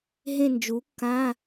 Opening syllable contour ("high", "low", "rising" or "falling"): falling